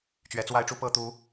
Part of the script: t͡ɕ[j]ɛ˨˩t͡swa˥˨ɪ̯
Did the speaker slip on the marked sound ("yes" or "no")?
yes